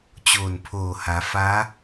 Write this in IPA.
t͡ɕ oː˧˩ n pʰ oː˧˩ h a˩˧ f a˧˥

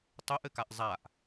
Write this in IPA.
tˤ ɵ ʔ ɘ k a ʔ zˤ a ʔ

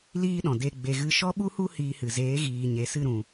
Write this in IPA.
l iː˦ ɗ ɔ̃˨ d e˧ ɡ͡b e˧ ɣ ɨ˧ ʃ ɔ˦ ɓ u˦ h u˦ h iː˧ h ɨ˨ z eː˨˦ ɣ iː˨ ɲ e˨ s ɨ˦˨ ɾ ũ˨

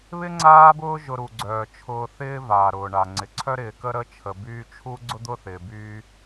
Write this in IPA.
β ɪ˥ ŋ͡ǀ aː˦ b ʊː˦ ʒ ʊ˨ ɾ u˩ ɡ͡ǀ œː˩ t͡ʃʰ ʊː˨ θ ɪː˦ v aː˩ ɾ ʊː˩ ɳ a˩ ŋ͡ǀ ɪ˩ ǀʰ œ˦ ɾ ɪː˨ k ə˦ ɾ ə˦ t͡ʃʰ ə˨ b yː˦ t͡ʃʰ u˥ ɡ͡ǀ ʊ˥ d̪ ʊː˥ θ ɪː˨ b yː˦

